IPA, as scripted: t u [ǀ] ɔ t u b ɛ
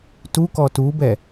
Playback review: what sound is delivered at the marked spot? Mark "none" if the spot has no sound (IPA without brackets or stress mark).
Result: k